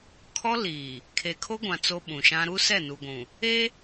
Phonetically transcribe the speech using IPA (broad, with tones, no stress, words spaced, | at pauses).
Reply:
kʰɔ˦liː˨ | kʰe˨kʰo˦ɡʷã˨ t͡so˦ɓũ˨ʃã˦ ɾu˦sɛ˦˨nu˨ ɡʷũ˨ | e˦